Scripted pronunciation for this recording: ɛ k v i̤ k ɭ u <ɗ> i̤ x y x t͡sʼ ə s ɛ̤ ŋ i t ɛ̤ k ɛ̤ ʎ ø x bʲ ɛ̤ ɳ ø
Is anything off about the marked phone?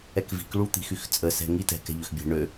yes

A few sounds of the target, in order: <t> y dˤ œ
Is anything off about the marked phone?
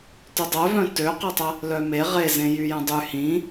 no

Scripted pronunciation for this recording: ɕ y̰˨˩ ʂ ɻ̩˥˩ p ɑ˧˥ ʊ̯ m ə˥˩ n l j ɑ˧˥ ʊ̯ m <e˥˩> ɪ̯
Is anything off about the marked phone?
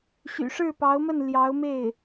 no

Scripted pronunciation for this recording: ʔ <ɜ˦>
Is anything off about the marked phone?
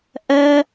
no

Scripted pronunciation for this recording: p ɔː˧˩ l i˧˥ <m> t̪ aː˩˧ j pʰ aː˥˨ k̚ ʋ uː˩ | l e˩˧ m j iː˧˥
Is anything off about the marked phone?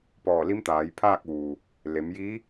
no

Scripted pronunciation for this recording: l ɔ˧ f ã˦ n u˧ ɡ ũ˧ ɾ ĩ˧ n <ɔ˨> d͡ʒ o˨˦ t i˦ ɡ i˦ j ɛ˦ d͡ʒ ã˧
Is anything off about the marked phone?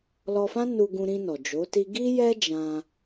no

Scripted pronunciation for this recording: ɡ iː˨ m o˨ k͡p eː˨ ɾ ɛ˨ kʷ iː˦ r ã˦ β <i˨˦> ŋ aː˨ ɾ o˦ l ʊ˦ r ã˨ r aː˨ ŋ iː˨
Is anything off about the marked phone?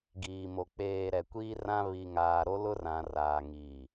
yes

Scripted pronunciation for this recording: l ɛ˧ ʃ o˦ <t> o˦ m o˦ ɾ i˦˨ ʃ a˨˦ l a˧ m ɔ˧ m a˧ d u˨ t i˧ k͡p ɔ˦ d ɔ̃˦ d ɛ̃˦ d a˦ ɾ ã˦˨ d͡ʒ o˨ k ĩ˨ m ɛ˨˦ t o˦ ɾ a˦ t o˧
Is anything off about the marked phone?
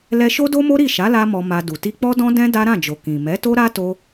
yes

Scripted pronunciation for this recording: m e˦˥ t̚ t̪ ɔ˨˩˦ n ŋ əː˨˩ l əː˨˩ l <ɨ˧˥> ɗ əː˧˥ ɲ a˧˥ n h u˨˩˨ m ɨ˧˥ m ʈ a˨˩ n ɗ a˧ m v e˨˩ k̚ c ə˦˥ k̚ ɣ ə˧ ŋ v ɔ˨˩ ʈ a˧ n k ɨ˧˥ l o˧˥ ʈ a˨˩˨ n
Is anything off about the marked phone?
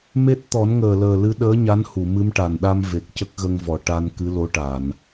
no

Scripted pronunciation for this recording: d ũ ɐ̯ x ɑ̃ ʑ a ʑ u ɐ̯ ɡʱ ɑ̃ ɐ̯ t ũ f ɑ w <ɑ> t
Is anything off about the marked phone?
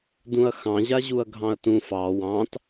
yes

